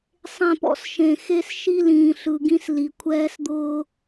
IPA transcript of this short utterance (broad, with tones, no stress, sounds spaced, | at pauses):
sˤ ẽ˦˨ p ɔ̰˦ s ʃ ẽ˨ x e˦ s ʃ i˦ l ĩː˨ ɬ ɯ˨ ɡ ĩ˦ s l i˨ kʷʰ ɛː˦ s d̪ ʊː˦